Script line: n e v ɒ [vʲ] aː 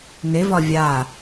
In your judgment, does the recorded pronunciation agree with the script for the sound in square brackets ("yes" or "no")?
yes